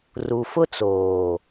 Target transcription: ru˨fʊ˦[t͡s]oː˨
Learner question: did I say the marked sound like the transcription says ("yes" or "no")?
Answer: yes